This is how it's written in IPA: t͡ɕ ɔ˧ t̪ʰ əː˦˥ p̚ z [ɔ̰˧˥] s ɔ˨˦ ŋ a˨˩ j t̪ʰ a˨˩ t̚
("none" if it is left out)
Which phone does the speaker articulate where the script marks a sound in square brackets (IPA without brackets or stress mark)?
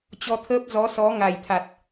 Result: ɔ˨˦